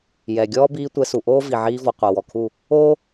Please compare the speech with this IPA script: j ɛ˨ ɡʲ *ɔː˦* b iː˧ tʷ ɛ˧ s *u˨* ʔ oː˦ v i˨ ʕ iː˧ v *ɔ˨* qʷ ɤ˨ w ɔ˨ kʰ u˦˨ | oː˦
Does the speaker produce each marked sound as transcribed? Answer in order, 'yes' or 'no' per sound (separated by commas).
yes, yes, yes